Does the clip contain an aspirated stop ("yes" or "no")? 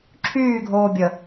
yes